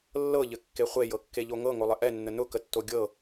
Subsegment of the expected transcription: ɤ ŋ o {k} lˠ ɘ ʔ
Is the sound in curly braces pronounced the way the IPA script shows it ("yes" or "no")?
no